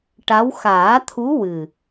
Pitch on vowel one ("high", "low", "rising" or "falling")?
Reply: rising